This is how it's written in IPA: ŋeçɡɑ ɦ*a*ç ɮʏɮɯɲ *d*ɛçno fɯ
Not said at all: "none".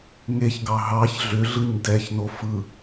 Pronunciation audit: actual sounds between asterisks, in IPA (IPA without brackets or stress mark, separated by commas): ɑ, d